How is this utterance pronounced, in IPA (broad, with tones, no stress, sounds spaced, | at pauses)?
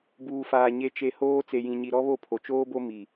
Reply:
b uː˨ f aː˨ ɲ e˨ t͡ʃ e˨ h oː˦ t͡s e˨ j ĩ˨ ɲ i˨ ɾ ɔ˦ β o˦˨ pʰ o˨ t͡ʃ oː˦ b o˦ m i˨